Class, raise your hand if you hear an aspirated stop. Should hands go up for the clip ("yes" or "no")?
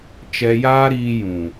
no